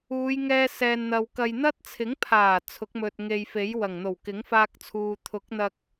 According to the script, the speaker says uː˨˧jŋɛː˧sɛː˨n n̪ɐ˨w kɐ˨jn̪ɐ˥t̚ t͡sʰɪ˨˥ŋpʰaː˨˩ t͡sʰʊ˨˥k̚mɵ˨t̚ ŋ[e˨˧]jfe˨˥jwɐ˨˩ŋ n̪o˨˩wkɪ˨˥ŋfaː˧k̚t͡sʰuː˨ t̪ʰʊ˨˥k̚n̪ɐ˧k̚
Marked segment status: incorrect: e˨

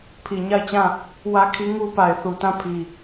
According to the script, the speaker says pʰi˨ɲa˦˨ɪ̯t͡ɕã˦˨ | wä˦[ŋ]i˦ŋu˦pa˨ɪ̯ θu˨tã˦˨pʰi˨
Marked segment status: incorrect: kʰ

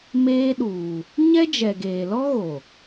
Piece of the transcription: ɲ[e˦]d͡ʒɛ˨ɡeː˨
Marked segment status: incorrect: ɛ˦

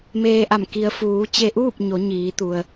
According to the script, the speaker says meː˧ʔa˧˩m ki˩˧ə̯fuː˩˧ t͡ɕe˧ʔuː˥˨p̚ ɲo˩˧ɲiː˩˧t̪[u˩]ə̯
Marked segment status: correct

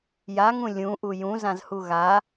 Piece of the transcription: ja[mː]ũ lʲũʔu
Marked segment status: incorrect: ŋ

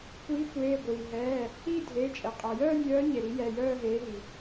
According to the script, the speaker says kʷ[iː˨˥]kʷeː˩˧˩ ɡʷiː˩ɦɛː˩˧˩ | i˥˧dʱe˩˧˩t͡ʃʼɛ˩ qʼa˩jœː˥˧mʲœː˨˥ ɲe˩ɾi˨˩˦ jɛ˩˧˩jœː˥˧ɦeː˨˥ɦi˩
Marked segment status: correct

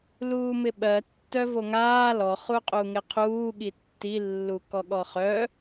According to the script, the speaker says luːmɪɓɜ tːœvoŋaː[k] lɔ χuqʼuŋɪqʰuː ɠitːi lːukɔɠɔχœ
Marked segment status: incorrect: none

